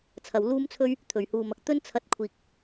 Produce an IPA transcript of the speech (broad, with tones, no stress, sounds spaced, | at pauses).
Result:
t͡sʰ ɐ˨ w l uː˥ m t͡sʰ ɵ˥ ɥ | t̪ʰ ɵ˨˩ ɥ h uː˨ m ɐ˨ k̚ t̪ ɵ˥ n t͡sʰ ɐ˨˥ t̚ kʷʰ iː˨ k̚